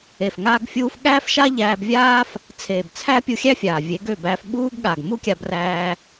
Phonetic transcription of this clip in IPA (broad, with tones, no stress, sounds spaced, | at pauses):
e˨ f ŋ aː˧ ɡ fʲ uː˧ f ɠ æː˦ f ʃ a˦ ʎ æː˧ b vʲ aː˦ f | t͡sʰ eː˨ b t͡sʰ æ˦ pʲ u˧ xʲ æ˦ fʲ aː˨ vʲ e˨˦ ɡ ø˦˨ b æː˧ f ɓ uː˦ ɡ ɠ a˨ ɡ m u˦ kʲ a˧ b r æː˧